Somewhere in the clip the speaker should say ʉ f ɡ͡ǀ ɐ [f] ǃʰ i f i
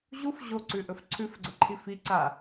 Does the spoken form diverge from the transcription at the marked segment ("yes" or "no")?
yes